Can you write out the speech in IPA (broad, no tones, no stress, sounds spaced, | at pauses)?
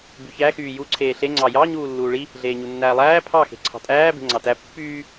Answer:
b y ç æ x yː j u ǀʰ eː ɬ e ŋ͡ǀ ɑ j ɑ ɲ uː lː uː ɭ i | ɮ eː ɲ u nː æː lˠ æː pʰ ɑ x e̤ ǀʰ ɑ̤ tʼ æː b e̤ ŋ͡ǀ ɑ t æ pː yː